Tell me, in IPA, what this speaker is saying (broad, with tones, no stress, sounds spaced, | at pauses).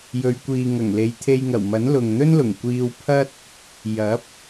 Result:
j ɵ˨ ɥ kʷ iː˨ ŋ ɐ˨˩ ŋ l e˨˧ j t̪ʰ e˧ j ŋ ɐ˨˩ w m ɐ˨˥ n l ʊ˨ ŋ n̪ ɵ˥ n l ʊ˨˩ ŋ kʷ iː˧ w pʰ ɐ˥ t̚ | j ɐ˨˥ p̚